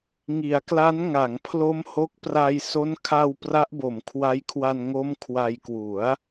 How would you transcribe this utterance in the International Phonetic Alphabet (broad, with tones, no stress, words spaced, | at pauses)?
ŋi˩˦a̯kla˦˥n ŋa˩˦ŋpʰlo˦˥m ho˦˥k̚ pra˧j so˦˥n kʰa˧w pra˦˥ʔbo˩˦mkʰwa˦˥jkʰwa˧n ŋo˦˥m kʰwa˧jkwu˩˦a̯